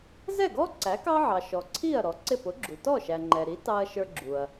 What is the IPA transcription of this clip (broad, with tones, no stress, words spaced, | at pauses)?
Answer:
zɛ˥˩ɡɔ˥ ǀæ˩˥kɑ˥ʕɑ˩ ʃɔ˩ǀʰi˥˩ɐ̯ ɾɔ˩˥ǀɪ˥˩ pʊ˩˥ɡ͡ǁu˩ tɔ˥˩ʃæ˩ ŋ͡ǃɛ˩ɾi˩˥ tɑ˧ɐ̯ ʃə˞˧ɡ͡ǁu˩ɐ̯